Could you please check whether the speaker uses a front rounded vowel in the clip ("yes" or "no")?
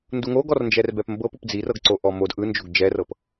no